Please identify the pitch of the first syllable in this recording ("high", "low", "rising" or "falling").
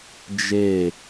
falling